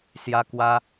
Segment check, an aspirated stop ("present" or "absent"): absent